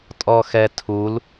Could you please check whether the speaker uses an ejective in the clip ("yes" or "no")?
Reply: yes